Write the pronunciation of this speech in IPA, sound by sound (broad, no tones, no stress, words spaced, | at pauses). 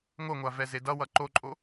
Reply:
ŋʷʌŋʷa vɛzedʌwʌ ǃoǃʼo